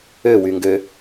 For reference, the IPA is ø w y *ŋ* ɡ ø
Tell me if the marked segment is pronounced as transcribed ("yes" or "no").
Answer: yes